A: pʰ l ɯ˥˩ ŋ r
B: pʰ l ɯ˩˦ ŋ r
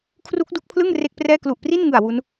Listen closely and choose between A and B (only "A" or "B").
A